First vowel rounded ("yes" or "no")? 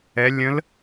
no